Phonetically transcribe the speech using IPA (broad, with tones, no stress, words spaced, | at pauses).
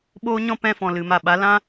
ɓoː˦ɲɔ̃˦ pɛ̃˦fɔ̃˨ lɨ˨ma˨ɓa˨˦ lã˦